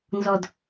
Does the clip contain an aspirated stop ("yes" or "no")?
no